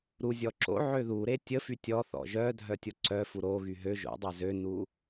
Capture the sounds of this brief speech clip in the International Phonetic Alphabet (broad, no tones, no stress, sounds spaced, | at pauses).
ɾ u zʲ ɔ ǁ o̰ ʕ ø ð u ɾ e tʲ ə f y tʲ ɔ θ ɔ̰ ʒ œ dʱ œ tʲ o ǀ œ f u ɾ o ɣ y ɦ ø ʒ o̰ dˤ a z ø n u